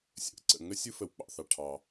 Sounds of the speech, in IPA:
sʲə̰˩ʔǀə̰˩ ŋə˥ sʲɯ˥fə˩wk͡pɑ̰˩θɑ˩ ʈʰɑ˩

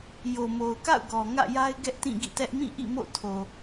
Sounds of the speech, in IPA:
jo˨mo˨ʊ̯ka̰˦˨ʊ̯ɡɔ˨ ŋä̰˦˨ja˦ɪ̯ɡɛ˦ʔ tĩ˦˨ɡḭ˦˨tɛ˦ʔ mĩ˦˨ʔḭ˦˨ mo̰˦˨tʰo˨

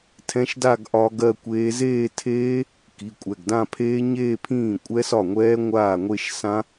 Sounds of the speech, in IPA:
tʰɛ̃˦˥ʃda˥˧ɡ ʔɒ˦˥ɡɜ˥˧kʷeː˦˥ zeː˥˧tʰeː˦˥ | ki˩˧˩kʷʼɛ˩˧˩ɡdã˥˧pʰeː˦˥ ɲeː˥˧pʰĩː˥˩ kʷʼɛ˦˥sɒ˥˩ŋʷɛː˦˥ ŋʷaː˥˩ŋʷe˥˧ʃ sã˦˥

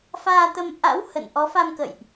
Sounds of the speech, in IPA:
faː˧t̪ə˧m ʔa̰˧˥w hə̰˧˨n ʔɔ˨˦fa˧m kə̰˧˨jʔ

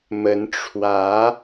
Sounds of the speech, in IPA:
mə˧˥nʈ͡ʂʰwä˧˥

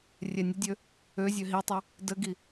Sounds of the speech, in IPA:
rʲɛnʲədʲø | øzʲø ɦitˤø | dəɡi

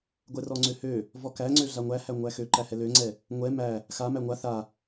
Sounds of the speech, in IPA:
ɡʷɛrɔŋ͡ǀøhø | vɔkæŋ͡ǀø ɮaŋʷæhæ ŋʷæxøǃæhɛ løŋ͡ǀɛ | ŋʷɛ mæ | xa mæŋʷa θa

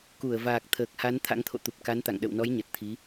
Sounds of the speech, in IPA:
ku˧˩ə̯vaː˨˩k̚ t̪ʰəː˨˩k̚ha˨˦n t̪ʰa̰˧˥ŋt̪ʰo̰˧˨ t̪u˨˩p̚ka˨˦nt̪a̰˧˨ŋ ɗə̰˧˨wnɔ˨˦jɲə˨˩t̚ t̪ʰi˨˦

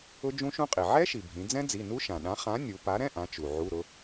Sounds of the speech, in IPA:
ʊ˦˥d͡ʒũ˦˥ʃũ˦˥qʼi˩ ʕɛ˦˥ʃi˩ bʱĩ˩˧d͡zɛ̃˦˥d͡zi˩˧˩ nu˦˥ʃã˩ɗã˨˥ χã˨˥nʲu˩˧ pa˨˥ɾɛ̃˧˥˧ ʔã˨˥t͡ʃu˩ʕu˧˥˧ɾʊ˦˥

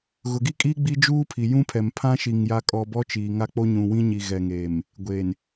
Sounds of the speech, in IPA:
ɣʊ˨ɡi˦kʼi˦ ɡ͡bi˦ d͡ʒuː˦pʰi˨jũ˦pʰɛ˨m pʰã˦ʃi˨ŋ ja˨kʼɔ˨ bɔ˦t͡ʃiː˨ŋa˦ k͡po˦ɲũ˨wĩ˦ɲi˨ ɣɛ˨ŋeː˨m | ɡʷeː˨n

